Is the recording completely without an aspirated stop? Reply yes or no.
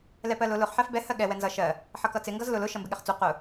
yes